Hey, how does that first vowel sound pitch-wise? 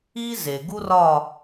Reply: high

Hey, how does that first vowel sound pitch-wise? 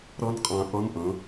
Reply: high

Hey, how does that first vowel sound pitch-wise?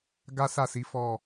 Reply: high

